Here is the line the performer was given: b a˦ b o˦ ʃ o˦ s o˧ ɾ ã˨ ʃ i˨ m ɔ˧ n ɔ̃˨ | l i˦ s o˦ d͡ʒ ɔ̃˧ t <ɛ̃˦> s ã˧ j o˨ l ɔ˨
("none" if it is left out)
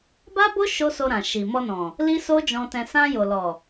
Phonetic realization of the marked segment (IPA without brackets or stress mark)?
ɛ̃˧